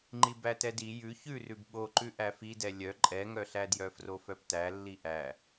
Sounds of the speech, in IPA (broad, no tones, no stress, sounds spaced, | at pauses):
ŋ͡ǃ i b æ t ɛ d i j ʉ ç ʉ r ʉ b ɓ o ǃ ʉ ʔ æ f i d ɛ lʲ œ ǃʼ ɛ ŋ œ ɬ æ d j œ f r o f œ p t æ lː i ʔ æ